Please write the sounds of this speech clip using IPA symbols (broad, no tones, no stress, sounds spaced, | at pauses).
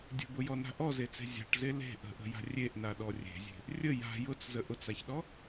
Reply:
dʲ ə̤ b ʊ j ɔ n a̤ ʔ ɔ z e t͡s e̤ zʲ a̤ ʈ z e l e̤ ʔ ə̤ ʔ ə̤ j a̤ rʲ e ʔ n a ɗ ɔ rʲ e̤ zʲ e̤ | rʲ ə j a̤ j ʊ t͡s z ə ʔ ʊ t͡s a ç ɗ ɔ